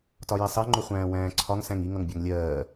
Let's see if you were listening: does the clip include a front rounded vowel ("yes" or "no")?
no